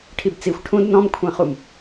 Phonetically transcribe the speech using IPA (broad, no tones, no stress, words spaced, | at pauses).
ʈʰibt͡sixʷ ʈʰũd nɔ̃mkʷʰɛ̃χum